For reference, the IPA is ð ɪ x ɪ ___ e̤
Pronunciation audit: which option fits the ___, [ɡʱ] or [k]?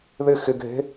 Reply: ɡʱ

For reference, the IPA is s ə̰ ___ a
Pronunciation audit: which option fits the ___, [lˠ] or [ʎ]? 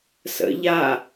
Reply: ʎ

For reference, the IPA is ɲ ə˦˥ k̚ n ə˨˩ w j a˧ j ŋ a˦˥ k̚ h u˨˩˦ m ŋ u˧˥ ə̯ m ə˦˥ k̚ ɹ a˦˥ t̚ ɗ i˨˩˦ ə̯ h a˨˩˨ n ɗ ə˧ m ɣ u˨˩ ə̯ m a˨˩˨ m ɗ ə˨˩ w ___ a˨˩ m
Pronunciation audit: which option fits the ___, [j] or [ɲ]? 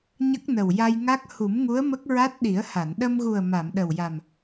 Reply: j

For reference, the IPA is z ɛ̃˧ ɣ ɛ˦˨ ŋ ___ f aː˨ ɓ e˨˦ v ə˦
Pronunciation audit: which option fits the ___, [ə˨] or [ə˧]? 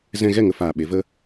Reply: ə˧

